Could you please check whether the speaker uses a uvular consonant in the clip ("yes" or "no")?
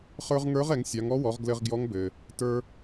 yes